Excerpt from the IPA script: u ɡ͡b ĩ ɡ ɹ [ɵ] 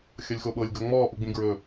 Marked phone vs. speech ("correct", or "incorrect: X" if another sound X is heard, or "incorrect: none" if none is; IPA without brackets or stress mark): correct